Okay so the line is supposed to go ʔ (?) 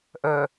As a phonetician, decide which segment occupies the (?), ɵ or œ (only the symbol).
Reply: œ